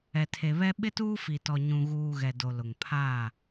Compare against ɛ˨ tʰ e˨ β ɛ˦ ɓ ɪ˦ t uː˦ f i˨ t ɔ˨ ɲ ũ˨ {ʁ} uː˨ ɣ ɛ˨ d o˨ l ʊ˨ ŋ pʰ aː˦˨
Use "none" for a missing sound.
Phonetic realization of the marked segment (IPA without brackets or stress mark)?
ɣ